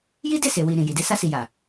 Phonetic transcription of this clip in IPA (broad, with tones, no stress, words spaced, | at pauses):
ji˦de˦˨se˨wi˨ ɾĩ˨ji˨de˧ sa˧si˨ja˨